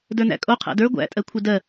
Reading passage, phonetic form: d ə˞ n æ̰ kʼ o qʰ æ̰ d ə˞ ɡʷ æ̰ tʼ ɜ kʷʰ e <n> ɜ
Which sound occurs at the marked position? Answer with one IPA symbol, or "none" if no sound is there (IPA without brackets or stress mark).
d